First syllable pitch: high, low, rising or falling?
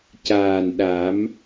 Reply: low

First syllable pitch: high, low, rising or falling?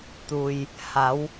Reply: low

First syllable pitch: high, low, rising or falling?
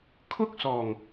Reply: high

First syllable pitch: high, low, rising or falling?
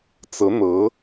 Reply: rising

